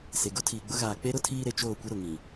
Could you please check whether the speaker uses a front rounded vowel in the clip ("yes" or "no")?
no